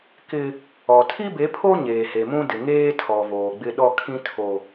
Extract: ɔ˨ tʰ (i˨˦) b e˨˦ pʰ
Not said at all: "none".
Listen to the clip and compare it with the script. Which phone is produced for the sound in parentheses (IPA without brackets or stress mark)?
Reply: i˦